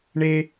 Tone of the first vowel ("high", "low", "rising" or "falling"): high